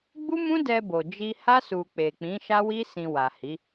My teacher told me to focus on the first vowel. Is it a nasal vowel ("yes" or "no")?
no